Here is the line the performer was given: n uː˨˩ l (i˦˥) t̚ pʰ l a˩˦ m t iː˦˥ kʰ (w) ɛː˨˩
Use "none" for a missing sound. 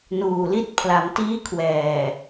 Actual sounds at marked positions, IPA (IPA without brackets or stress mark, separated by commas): i˦˥, w